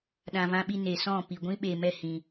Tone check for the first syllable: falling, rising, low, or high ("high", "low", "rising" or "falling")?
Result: low